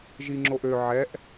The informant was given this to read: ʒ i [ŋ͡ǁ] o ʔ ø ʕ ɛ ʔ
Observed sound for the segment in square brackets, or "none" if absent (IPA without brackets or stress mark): ŋ͡ǁ